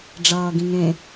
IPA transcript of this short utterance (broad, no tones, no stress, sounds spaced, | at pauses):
ɖ͡ʐ ʌː ɡ ĩ ŋ ẽ